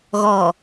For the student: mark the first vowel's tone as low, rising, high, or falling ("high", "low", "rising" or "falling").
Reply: low